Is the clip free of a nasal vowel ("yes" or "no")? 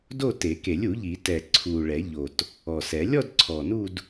yes